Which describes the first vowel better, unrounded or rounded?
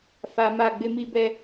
unrounded